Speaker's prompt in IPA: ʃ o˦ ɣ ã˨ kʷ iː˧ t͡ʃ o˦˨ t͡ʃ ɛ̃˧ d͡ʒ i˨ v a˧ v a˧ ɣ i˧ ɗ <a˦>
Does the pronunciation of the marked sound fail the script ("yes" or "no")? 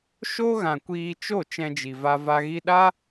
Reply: no